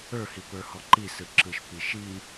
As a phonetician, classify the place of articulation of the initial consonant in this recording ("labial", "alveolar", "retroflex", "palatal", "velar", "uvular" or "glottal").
glottal